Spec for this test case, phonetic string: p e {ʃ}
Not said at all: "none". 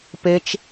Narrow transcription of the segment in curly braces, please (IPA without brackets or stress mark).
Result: t͡ʃ